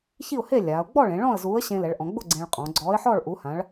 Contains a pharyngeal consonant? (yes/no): yes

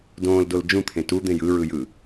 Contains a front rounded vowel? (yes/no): no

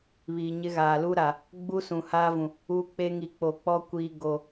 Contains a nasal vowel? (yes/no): yes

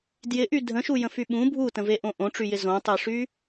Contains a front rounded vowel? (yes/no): yes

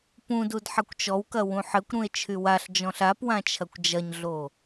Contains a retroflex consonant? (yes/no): no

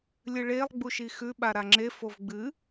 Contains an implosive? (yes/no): yes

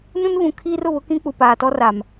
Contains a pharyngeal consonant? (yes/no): no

